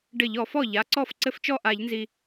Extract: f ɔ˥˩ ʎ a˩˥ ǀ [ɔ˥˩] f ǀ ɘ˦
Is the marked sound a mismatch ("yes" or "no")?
no